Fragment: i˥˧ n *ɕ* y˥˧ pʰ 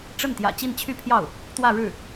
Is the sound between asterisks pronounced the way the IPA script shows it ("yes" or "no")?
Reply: no